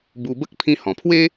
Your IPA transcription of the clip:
b u˧ b ə˦ k̚ pʰ ĩ˧ h ɔ̃˨˩ pʰ w e˦

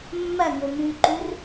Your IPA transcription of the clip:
mː ɐ ŋ o m ʉ ǃ u r

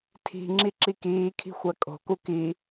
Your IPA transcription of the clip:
tʰ i̤ ŋ͡ǁ i ǁ i k iː kʰ i̤ xʷ æ kʼ o̤ k u k i

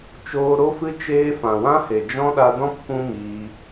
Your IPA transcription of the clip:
t͡ʃ oː˦ ɾ o˦ f ɨ˦ t͡ʃ eː˦ f ã˨ w ã˦ h e˨ d͡ʒ ɔ̃˦ ɗ a˧ d ɔ̃˦ p kʷ ũ˦ m iː˧

